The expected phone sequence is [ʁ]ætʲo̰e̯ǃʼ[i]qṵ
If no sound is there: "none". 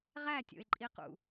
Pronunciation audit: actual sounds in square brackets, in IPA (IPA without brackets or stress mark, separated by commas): ʁ, i